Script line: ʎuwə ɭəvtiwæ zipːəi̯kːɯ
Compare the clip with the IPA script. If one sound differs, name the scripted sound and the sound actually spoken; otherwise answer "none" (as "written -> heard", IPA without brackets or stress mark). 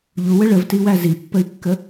ɯ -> ə